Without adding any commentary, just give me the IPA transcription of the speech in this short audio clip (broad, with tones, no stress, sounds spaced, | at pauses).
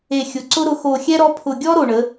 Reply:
e˨˩ xʲ ʊ˩˧ ǀ ʊ˦ ɾ ʊ˩˧ x o˨˩ xʲ ɛ˦ ɾ ɔ˨˥ pʰ ʊ˨˩ ɡʲ ɔ˦ ɾ o˨˩ ɳ ə˩˧